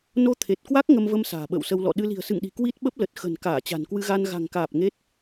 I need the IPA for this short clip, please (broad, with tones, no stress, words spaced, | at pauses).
no˧t̪ʰe˨˩t̚kwa˦˥k̚ ŋə˧mvə˧m sa̤ː˨˩ɓə̰ː˧˨wsə˧w lɔ̰˧˨ɗɨ˧ li̤˨˩ə̯sɨ̰˧˨ŋɗi̤˨˩ kwi˦˥t̚ɓə˦˥p̚lə˨˩t̚ xə̤˨˩nkaː˧˩ t͡ɕa̤˨˩nkwɨ˧ɣa˧n ɣa̤˨˩ŋkaː˨˩p̚ ŋe˦˥t̚